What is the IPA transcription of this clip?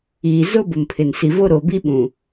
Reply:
iː˨ z o˦ b ʊ˨ m pʰ ɪ˨ n s i˨ v o˦ ɾ oː˨ b i˦ ɓ ũ˨

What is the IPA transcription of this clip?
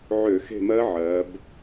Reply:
ʕ ø˧˩˧ x e̤˦˨ m ɜ˦˥ ʕ ɜ˩˧ b

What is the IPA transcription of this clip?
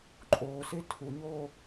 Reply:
ǃʼ oː s e tʰ u ɲ oː

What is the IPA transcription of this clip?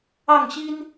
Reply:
ɑ˥˩ ŋ ɕ i˥ n

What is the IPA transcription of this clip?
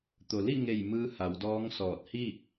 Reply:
t̪ o˩ l i˥˨ ŋ e˧˩ j m ɯː˧ h a˩˧ w d ɔː˧˥ ŋ s ɔː˧˩ t̚ h i˥˨ k̚

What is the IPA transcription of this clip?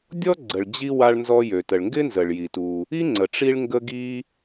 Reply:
dʲ ɔ˥ ɡ͡ǀ ə˩ ɭ d͡ʑ i˧ w a˧ ɭ n z ɔ˧ j ø˩ t ə˩ ɭ ŋ ɡ ɪ˥ n z ə˩ ɭ j i˩ t u˩ | i˥ ŋ͡ǀ ə˩ ʈ͡ʂ i˧ ɭ ŋ ɡ ə˧ ɡ i˧

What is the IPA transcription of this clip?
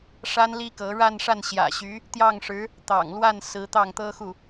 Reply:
ʂ a˥ n l i˥ k ɤ˧˥ ɻ a˥˧ n ʂ a˥˩ n ɕ j ä̰˨˩ ɕ y˧˥ | t̪ j ɑ˥˩ ŋ ʂ ɻ̩˧˥ | t̪ ɑ̰˨˩ ŋ l w a˥˩ n s ɹ̩˧˥ t̪ ɑ˥˩ ŋ t̪ ɤ˥ x u˥˩

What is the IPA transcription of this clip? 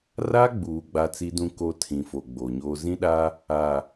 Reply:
r a˦ ɡ͡b uː˨ ɡ͡b a˦ t͡s i˦ d ũ˦ k o˦ tʰ ĩ˨ f o˨ ɡ͡b o˨ ɲ oː˦ z ĩ˦ ɗ a˦ | a˨

